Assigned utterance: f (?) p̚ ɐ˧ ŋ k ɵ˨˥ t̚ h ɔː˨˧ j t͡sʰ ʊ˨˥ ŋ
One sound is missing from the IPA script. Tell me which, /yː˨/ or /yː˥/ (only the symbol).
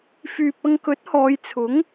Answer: yː˨